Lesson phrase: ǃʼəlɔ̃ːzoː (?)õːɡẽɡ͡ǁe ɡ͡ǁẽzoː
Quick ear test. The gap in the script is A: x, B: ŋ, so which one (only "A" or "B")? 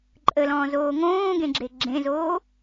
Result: B